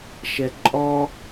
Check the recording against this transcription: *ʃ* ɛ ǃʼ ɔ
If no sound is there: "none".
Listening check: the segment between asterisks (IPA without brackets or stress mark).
ʃ